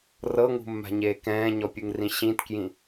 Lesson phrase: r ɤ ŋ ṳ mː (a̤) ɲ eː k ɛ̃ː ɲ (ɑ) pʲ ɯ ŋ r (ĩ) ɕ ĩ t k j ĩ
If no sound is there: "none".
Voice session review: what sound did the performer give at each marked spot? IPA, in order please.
a̤, ɔ, ĩ

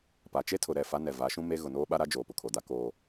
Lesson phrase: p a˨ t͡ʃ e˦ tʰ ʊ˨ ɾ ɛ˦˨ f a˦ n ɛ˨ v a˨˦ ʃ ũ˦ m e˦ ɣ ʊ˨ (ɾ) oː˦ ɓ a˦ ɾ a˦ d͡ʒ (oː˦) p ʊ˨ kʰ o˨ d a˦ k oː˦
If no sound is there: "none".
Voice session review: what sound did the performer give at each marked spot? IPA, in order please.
n, oː˨

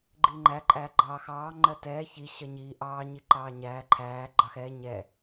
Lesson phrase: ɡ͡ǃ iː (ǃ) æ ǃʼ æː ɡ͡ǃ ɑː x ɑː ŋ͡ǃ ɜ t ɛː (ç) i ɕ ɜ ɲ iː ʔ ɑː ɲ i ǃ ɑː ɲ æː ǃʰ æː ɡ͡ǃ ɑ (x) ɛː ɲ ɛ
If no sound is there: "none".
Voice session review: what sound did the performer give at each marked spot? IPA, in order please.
ŋ͡ǃ, ç, x

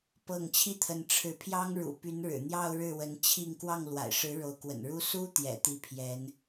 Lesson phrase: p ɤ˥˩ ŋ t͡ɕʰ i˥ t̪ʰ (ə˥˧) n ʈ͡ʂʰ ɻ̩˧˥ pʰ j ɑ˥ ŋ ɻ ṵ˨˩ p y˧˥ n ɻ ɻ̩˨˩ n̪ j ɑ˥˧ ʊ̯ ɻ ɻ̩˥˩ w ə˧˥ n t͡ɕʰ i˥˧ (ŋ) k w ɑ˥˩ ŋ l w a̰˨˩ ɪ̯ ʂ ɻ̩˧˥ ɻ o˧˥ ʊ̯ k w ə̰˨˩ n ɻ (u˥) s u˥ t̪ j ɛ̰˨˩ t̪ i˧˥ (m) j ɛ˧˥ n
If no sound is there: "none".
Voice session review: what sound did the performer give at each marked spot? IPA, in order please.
ə˧˥, ŋ, u˥, pʰ

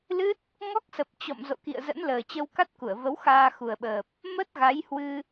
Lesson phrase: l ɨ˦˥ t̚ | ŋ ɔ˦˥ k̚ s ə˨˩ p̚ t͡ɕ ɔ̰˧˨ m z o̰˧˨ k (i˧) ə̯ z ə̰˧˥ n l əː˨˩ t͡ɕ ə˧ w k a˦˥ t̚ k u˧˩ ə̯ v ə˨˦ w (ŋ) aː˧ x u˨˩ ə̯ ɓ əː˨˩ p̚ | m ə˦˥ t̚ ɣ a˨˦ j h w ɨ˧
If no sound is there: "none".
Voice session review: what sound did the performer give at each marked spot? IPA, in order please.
ḭ˧˨, x

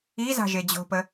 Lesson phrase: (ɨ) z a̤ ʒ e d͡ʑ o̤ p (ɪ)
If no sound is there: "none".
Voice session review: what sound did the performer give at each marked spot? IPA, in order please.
i, ə

